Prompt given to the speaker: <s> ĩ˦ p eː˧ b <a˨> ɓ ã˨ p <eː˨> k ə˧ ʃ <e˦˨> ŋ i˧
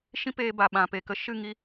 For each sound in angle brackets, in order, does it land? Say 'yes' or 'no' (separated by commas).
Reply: no, yes, no, no